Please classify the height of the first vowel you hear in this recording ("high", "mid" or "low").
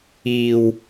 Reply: high